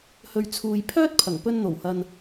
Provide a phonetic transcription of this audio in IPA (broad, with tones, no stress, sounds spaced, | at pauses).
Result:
h ɵ˨ ɥ t͡sʰ uː˨ j pʰ œː˥ t̚ pʰ ɐ˨˩ ŋ p ɵ˧ n n̪ o˨˩ w h ɐ˨ n